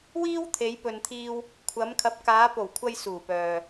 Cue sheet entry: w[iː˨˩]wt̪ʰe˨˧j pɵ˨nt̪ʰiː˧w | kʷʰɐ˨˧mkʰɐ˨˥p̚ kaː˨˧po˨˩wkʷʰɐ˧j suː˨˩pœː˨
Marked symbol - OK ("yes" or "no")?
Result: no